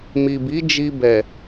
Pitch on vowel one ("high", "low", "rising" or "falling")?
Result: low